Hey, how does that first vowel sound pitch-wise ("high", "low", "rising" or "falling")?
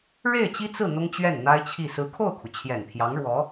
falling